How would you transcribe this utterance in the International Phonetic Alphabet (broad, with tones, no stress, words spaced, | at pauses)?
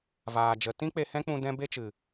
vaː˨d͡ʒə˨˦ tĩ˦k͡pe˧hɛ̃˦k͡pũ˧ dɛ̃˦be˦t͡ʃɨ˨